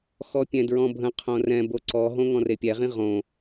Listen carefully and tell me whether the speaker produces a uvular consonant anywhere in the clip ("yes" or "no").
yes